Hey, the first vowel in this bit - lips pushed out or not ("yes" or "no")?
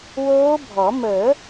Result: yes